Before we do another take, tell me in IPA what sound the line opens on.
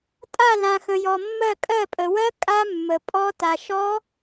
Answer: tʼ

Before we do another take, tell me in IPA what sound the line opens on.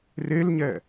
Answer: r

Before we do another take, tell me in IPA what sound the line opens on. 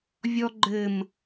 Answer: vʲ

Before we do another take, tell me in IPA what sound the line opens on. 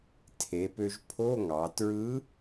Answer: tʰ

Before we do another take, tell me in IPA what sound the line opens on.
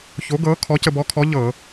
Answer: ç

